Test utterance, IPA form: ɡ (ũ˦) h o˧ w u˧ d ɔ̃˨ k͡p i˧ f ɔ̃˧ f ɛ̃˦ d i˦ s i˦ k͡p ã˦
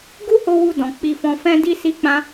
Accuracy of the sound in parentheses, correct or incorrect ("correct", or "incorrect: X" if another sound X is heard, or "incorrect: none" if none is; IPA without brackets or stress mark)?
incorrect: u˦